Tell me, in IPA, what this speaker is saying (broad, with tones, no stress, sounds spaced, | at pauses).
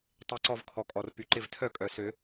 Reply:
tˤ e˨˩˦ ǀ ɔ˧˩ v kʰ ɔ˩ kʼ ɔ˩ r p y˩ ǃ ɪ˧˩ v tʰ œ˥˩ kʼ œ˩ s ø˨˩˦